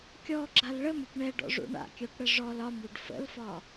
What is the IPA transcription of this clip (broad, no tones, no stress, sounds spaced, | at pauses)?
kʲ ɔ ɡ͡ǁ a l ɭ ə m ɾʲ ə p ɳ ɛ ɖ ɔ̰ ʐ ṵ ɳ a̰ kʲ œ p ɽ ə ʐ ɔ l ɒ m ɽ u ɖ f ə̰ l f ɒ